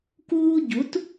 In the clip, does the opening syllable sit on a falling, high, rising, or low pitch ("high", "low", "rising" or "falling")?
high